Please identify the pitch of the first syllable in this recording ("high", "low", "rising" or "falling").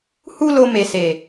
high